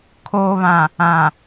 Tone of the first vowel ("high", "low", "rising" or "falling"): low